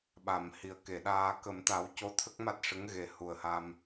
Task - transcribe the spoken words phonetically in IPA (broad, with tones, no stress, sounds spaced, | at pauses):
ɓ a˨˩˨ m h i˨˩ ə̯ k e˨˩˨ ɗ aː˧ k ə˨˩˦ m t̪ a˨˩˦ w c o˧ t̪ʰ ə˦˥ k̚ m a˦˥ t̚ ʂ ə˧˥ ŋ ɣ e˨˩˦ h u˨˩ ə̯ h a˧ m